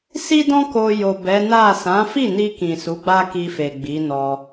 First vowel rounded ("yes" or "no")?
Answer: no